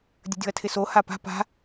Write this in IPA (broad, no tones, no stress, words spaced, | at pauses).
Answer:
dʲə̤dʲo̤ɐ̯tʰɪso hapa̤ pa̤